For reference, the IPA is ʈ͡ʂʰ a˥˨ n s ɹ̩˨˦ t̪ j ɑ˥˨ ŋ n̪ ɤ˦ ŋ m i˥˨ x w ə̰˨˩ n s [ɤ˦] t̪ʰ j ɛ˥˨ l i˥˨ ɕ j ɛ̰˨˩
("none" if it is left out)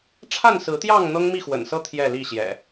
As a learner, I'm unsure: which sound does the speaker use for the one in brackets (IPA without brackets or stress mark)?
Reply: ɤ˦